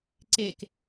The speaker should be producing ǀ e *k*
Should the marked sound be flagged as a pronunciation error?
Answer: no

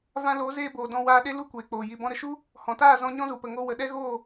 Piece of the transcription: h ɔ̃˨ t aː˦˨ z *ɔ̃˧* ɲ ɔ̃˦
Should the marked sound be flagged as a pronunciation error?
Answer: no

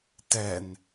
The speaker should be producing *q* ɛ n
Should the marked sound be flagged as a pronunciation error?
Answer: yes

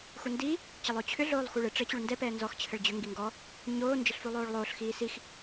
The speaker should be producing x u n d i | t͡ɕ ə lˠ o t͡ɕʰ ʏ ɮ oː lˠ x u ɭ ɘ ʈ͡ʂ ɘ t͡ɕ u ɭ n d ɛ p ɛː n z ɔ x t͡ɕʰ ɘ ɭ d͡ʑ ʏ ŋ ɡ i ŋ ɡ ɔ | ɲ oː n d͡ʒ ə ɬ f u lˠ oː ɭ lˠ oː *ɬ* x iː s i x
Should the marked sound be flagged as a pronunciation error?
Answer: no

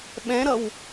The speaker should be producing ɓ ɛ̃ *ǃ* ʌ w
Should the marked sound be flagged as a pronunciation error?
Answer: yes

